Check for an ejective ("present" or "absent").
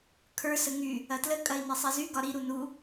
present